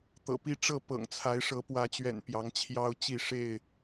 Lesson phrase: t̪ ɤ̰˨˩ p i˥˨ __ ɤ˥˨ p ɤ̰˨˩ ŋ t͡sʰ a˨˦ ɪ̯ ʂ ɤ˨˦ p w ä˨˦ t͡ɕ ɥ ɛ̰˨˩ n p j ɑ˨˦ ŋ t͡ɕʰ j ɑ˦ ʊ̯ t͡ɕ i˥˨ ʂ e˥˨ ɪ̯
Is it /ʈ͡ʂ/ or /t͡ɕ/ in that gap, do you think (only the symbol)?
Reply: ʈ͡ʂ